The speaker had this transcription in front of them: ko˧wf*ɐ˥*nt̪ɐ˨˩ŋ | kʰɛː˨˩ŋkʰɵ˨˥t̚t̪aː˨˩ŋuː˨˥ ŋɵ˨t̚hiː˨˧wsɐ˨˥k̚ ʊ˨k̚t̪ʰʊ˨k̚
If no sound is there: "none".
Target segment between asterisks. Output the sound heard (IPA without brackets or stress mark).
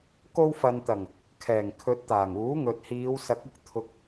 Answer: ɐ˨